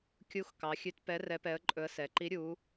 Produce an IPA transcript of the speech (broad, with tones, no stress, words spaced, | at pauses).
kʲu˧˥x kɑ˩˧xʲʉ˧˥t pɛ˧˥ rɛ˧˥pɛ˧˥ə̯ǃʼɵ˧˥ə̯ sɛ˩˧ǃi˧˥ ɾʲu˧˥